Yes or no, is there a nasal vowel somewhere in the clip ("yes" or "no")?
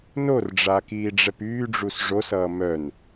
no